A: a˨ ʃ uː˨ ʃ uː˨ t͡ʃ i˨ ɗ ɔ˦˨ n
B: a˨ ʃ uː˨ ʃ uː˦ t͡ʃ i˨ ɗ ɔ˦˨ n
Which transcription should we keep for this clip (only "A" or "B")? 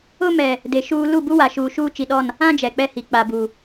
B